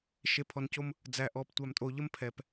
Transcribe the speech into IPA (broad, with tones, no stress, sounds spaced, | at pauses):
ʃ e˨ pʰ ɔ˨ n c o˦ m | d͡z æ˨ ʔ ɔ˨ p tʷ æ˨ m tʼ o˨ ʎ ə˦ m pʰ ɛ˨ p